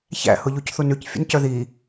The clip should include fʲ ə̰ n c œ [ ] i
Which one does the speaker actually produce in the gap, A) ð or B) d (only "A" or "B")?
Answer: A